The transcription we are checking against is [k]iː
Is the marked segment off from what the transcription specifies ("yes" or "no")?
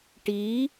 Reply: yes